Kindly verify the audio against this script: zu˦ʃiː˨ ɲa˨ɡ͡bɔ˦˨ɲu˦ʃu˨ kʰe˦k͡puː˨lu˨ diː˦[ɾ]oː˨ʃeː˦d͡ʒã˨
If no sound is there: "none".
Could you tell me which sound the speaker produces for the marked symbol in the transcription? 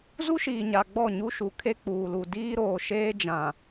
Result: ɾ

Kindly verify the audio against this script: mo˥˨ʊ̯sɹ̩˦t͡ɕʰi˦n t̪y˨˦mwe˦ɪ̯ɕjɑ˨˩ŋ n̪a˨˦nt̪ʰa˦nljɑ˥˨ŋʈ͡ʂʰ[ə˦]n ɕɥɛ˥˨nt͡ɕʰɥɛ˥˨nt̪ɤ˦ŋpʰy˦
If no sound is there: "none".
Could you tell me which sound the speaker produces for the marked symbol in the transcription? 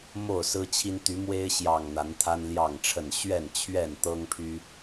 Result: ə˥˨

